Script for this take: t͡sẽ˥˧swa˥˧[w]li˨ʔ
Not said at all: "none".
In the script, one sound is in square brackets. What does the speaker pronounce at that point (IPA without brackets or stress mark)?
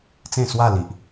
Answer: none